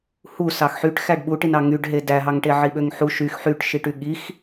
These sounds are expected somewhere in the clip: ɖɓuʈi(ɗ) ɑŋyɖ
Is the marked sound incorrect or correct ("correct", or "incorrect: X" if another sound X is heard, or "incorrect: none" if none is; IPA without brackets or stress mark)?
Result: incorrect: n